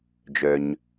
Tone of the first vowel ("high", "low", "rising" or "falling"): low